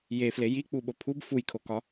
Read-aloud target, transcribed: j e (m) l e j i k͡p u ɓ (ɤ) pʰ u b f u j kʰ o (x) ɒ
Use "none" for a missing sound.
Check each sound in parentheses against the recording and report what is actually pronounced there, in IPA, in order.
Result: f, o, k

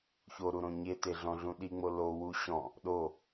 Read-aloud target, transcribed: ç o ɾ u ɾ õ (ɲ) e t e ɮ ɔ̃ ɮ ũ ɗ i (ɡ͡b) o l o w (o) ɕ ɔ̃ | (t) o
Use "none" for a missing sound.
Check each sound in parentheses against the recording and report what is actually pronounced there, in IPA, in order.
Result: ɲ, ŋ͡m, u, ɗ

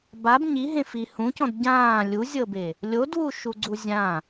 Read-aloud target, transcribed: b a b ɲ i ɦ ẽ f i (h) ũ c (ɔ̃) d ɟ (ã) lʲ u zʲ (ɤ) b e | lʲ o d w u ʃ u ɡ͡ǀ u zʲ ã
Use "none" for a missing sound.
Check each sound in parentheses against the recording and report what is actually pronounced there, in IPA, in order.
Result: h, ɔ̃, ãː, ɤ

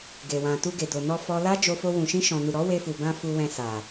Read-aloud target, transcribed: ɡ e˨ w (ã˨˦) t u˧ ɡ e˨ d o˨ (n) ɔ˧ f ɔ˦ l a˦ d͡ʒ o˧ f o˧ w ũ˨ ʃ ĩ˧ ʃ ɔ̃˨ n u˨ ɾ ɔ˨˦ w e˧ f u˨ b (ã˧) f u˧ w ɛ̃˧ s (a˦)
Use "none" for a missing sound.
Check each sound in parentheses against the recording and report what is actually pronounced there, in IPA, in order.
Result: ã˨, n, ã˧, a˨

